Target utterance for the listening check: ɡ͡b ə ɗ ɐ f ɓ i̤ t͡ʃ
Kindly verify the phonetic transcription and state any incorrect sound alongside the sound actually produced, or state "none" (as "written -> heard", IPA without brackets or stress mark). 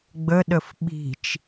ɐ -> ə